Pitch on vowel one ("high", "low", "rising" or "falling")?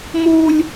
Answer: high